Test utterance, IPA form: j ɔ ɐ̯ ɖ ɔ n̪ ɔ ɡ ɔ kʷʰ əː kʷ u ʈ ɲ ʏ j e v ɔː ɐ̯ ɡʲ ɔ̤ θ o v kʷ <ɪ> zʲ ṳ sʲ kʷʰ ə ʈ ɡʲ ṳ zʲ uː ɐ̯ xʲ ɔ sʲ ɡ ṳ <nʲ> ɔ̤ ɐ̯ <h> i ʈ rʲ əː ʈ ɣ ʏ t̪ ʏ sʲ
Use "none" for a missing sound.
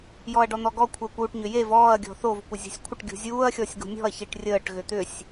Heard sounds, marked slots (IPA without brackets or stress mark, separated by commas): ɪ, nʲ, ç